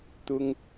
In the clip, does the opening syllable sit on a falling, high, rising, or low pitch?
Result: high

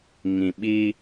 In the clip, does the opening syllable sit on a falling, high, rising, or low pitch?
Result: low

